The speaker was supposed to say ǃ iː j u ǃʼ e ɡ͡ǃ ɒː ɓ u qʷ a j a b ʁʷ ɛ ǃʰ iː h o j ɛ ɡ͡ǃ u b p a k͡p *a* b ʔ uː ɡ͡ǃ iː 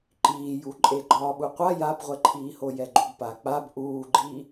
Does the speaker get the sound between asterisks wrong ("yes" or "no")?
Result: no